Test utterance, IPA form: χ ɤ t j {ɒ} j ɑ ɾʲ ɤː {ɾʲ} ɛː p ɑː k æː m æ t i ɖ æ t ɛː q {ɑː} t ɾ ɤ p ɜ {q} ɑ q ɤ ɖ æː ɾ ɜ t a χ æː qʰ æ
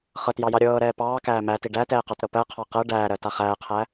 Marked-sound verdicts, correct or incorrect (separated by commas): incorrect, incorrect, incorrect, incorrect